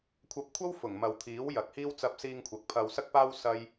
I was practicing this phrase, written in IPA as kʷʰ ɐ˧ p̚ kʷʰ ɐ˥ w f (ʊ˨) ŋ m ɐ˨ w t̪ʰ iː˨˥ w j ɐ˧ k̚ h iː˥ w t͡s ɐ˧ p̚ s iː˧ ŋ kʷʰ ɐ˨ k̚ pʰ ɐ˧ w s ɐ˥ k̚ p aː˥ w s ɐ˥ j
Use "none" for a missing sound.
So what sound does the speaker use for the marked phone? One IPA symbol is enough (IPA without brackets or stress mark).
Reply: ʊ˨˩